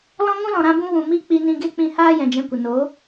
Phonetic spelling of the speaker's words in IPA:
l ɔ̃˦ ŋ ũ˦ l ɔ̃˨ ɾ ã˧ b ũ˧ w ũ˨ m i˦ k͡p i˧ n ĩ˧ ɡ e˦ k͡p ĩ˧ h aː˦ j ɛ̃˨ d͡ʒ ɛ̃˧ kʷ ə˨ n o˨˦

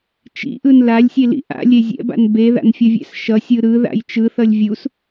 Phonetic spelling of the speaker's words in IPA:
t͡ʃ ḭ ʔ ɯ n l a lʲ sʲ e l ḭ ʔ a̰ lʲ e zʲ ɛ̰ b a̰ n b e ð a̰ n fʲ ʌ vʲ ɛ̰ s ʃ ʌ sʲ ɯ ɾ ɯ ð a̰ j t͡ʃ ɯ θ ʌ lʲ vʲ u s

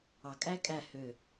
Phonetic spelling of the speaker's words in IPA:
ɑ kʼ æ kʼ æ h ø

